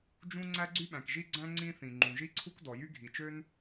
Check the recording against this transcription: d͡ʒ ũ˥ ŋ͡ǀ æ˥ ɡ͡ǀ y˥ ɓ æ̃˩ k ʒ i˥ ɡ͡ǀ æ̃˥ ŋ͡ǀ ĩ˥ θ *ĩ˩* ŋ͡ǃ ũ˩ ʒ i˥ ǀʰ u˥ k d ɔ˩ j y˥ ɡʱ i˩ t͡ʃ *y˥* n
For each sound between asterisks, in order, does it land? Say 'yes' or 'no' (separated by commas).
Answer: yes, no